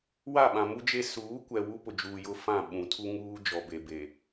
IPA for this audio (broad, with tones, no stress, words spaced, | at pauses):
wa˦˨ɓã˨mu˦d͡ʒe˦ suː˨˦kʷɛ˨ wu˦pʊ˨d͡ʒuː˨jʊ˦ fã˦˨ ɓũ˨˦tʰu˦ŋuː˦ d͡ʒɔ˨be˨ be˨